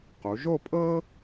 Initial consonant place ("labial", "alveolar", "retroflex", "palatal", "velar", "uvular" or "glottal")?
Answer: uvular